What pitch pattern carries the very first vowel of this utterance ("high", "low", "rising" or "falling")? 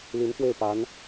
rising